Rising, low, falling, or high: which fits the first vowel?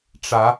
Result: rising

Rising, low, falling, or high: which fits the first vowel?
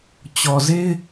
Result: low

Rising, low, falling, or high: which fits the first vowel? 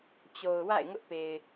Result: low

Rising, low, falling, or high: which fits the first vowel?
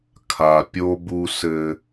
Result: low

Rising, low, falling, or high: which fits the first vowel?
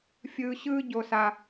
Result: high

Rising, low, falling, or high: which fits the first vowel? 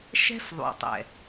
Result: high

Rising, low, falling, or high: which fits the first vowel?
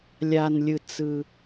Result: low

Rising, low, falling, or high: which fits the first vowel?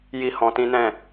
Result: high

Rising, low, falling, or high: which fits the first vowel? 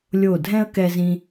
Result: falling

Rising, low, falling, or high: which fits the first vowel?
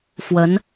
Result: rising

